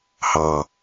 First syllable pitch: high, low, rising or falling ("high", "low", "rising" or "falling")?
low